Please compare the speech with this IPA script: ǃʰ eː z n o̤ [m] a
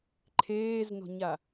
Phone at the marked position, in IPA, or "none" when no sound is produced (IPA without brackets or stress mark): ɲ